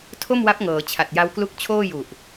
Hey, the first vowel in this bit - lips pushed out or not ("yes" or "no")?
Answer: yes